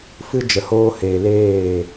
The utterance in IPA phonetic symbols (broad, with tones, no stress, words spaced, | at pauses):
fɨ˦d͡ʒə˨ hoː˧heː˨leː˦˨